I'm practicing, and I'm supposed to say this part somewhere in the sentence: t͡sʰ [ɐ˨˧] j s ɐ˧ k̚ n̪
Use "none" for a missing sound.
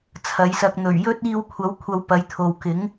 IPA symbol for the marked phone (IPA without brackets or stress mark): ɐ˨˧